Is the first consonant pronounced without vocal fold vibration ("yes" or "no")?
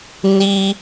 no